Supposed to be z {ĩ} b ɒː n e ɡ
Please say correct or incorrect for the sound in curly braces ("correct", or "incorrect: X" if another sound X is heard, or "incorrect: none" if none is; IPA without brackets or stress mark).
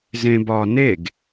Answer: incorrect: ẽ